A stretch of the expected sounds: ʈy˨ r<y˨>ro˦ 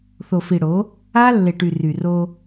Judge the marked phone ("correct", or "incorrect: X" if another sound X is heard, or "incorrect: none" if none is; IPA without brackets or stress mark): correct